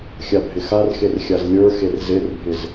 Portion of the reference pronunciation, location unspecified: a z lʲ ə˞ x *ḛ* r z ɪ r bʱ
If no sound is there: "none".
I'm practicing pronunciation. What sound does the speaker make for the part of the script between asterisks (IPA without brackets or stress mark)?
e